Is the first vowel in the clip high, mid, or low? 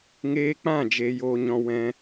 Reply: mid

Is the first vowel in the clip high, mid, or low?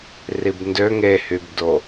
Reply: high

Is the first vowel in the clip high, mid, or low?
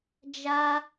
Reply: low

